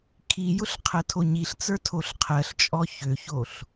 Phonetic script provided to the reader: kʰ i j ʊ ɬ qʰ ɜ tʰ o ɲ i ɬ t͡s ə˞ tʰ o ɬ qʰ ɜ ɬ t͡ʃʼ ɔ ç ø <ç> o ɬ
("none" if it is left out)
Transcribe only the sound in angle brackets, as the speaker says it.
ç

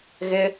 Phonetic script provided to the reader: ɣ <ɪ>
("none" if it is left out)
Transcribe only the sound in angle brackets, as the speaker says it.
ɪ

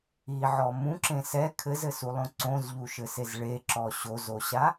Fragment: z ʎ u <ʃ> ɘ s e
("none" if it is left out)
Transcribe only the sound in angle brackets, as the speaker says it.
ʃ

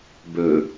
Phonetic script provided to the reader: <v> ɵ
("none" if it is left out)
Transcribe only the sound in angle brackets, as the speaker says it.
b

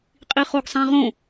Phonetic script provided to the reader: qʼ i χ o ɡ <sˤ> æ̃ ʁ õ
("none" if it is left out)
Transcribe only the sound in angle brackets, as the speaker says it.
sˤ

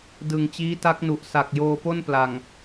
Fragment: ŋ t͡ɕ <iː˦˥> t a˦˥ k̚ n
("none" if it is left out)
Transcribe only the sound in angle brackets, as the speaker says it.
iː˦˥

